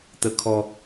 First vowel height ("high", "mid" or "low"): mid